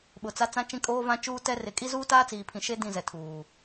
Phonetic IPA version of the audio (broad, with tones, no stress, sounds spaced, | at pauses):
ɓ ʊ˨ t͡s a˦ t͡s ã˦ t͡ʃ ĩ˦ kʼ oː˦ v ã˦ t͡ʃ uː˦ t ɛ˦ r ɪ˨ kʼ i˦ z uː˦ t aː˦ t͡s iː˨ pʰ ĩ˨ ʃ e˦ d ĩ˦˨ z ɛ˨ tʰ uː˨